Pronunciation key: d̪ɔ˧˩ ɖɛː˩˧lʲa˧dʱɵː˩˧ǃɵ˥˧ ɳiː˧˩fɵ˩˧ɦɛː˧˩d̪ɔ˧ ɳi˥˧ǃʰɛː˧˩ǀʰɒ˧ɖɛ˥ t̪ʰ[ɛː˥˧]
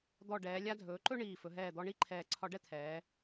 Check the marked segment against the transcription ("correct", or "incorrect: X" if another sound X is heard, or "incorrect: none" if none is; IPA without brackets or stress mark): incorrect: ɛː˩˧